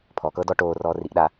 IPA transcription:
pʰ ɔ k ɤ d ɔ ʈ oː r ɔː r i ʔ ɗ a

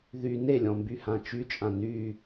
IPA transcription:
ð y n e lʲ ɔ̃ m b y h ã t͡ʃ y t͡ʃʼ ã n y

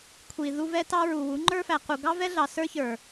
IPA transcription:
kʷʰ i˨ ð u˧ v ɛ˧ t ɑ˧ ɹ u˨ w u˨˦ ŋ͡ǃ ə˞˦ f æ˨ q u˨ ɡ ɑ˦ v ɛ˦ ɮ ɑ˨ s ə˞˦ ç ə˞˨

